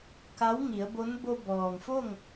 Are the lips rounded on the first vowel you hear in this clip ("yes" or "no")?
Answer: no